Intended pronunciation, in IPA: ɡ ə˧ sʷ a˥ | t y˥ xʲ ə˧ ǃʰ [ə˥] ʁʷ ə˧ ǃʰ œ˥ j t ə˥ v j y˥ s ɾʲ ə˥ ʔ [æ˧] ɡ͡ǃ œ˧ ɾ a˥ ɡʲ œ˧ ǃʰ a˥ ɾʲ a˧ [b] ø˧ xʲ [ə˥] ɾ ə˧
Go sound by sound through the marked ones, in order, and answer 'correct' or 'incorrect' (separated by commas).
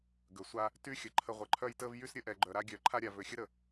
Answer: correct, incorrect, incorrect, correct